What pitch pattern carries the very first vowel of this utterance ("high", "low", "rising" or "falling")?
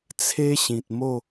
high